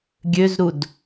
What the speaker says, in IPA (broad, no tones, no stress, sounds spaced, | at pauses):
ɡʲ ø z ɾ u d